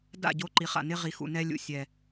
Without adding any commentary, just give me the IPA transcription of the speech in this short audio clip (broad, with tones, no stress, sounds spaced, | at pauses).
d a̰˦˨ ɟ o˦ ǃ i˨ χ a̰˨ n ɪ˦ ʁ i˨ x ṵ˨ n ɛ˦ lʲ ṵ˨ sʲ ɛ˨